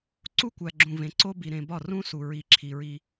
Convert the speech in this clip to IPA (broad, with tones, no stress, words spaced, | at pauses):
ǀu˦kʷæ˨ ɡ͡ǁũ˨vẽ˨ǀo˦bi˨ ɾẽ˨ bɒ˦˨ rũ˦su˨ ɹi˨ǁʰi˨ɹi˦